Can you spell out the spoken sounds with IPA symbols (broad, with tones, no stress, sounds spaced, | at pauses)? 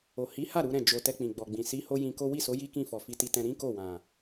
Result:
o˨ h i˨˦ h a˦˨ ɾ u˨˦ ɾ ɛ̃˦˨ d͡ʒ o˨ t ɛ˧ k͡p ĩ˨ ɡ͡b ɔ˨ ɡ͡b ĩ˨ s i˨˦ h o˦ j ĩ˧ k o˦ w i˦˨ s o˨˦ j i˦ k ĩ˦˨ f ɔ˨ f i˧ t i˧ t ɛ̃˧ ɾ ĩ˦ k o˦˨ w ã˨